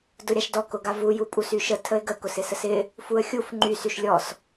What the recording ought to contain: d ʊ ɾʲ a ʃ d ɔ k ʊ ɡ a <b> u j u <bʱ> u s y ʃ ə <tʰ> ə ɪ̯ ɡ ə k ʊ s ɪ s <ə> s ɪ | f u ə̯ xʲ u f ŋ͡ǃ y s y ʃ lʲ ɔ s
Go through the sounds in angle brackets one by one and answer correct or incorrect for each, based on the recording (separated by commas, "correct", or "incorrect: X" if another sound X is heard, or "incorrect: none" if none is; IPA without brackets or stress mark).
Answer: incorrect: v, incorrect: pʼ, correct, correct